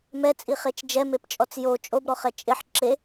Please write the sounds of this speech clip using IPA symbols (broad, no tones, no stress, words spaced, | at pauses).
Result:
mɛt͡sʼiχet͡ʃ d͡ʒɛmept͡ʃʼɔt͡s jo t͡ʃʼobɾɔχɛ t͡ʃʼɪħ ǁe